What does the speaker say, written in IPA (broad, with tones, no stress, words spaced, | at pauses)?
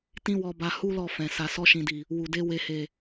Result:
tĩ˦wɔ˧ba˧ hu˦lɔ˦˨fɛ̃˨ sa˨sɔ˧ʃĩ˨di˨ | wu˨de˧ we˨he˨